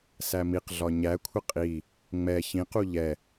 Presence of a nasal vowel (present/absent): present